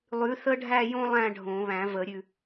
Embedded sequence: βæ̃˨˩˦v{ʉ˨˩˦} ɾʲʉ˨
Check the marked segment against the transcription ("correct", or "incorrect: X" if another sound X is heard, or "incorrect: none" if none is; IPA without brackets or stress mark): incorrect: ə˨˩˦